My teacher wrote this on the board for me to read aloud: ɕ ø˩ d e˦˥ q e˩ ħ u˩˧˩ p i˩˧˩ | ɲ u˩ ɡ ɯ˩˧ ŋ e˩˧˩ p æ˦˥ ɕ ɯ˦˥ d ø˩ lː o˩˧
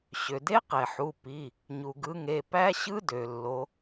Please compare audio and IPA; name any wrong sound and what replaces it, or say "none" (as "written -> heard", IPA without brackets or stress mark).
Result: none